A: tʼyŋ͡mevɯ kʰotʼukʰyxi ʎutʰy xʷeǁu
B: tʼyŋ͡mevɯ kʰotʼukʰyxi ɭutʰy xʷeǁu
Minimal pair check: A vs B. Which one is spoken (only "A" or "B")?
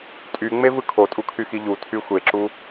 A